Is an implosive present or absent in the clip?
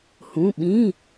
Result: present